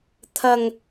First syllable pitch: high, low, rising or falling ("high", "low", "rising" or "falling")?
high